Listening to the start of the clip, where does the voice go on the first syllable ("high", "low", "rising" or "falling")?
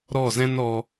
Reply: falling